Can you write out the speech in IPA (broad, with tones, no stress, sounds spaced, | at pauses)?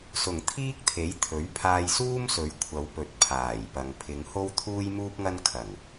s ʊ˨˩ ŋ t̪ʰ iː˥ k̚ t̪ʰ e˨˥ j t̪ʰ ɵ˨˥ ɥ pʰ aː˧ j s uː˥ m s ɵ˨˧ ɥ kʷʰ ɐ˨˧ w p ɵ˨ t̚ pʰ aː˨˩ j p ɐ˨ ŋ pʰ ɪ˨˧ ŋ h o˥ w t̪ʰ uː˥ j m uː˥ p̚ ŋ ɐ˥ n kʰ ɐ˨˩ ŋ